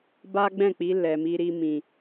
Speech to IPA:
ba˦ɡ͡bɛ̃˦˨k͡pi˨˦ lɛ˧mi˦ɾi˦mĩ˧

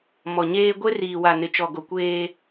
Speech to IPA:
mɔ˨ɲeː˦ ɡʷe˦riː˨ wa˨nɪ˨t͡ʃɔ˨ɡo˨ kʷeː˦

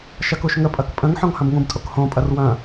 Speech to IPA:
ʃɐkuʃŋəpʼɐk pʼə̃ŋħɔ̃ŋ hɐ̃bŋũbtʼok hõpʼɐr wɐ̃

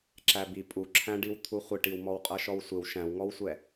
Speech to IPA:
ǁæbi pʼuǁʰæ̃ɖiw t̪ʰuχʷɪʈiw mɔwqʼʌʃɔwsʷɪw ʃæ̃wŋɔwsʷɛ

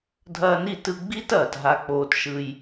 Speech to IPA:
dʱɐː˧ni˦˨tɯ˧ ɡ͡bi˦t ɐː˨tɦa˧k͡poː˧tʃɯ˧j

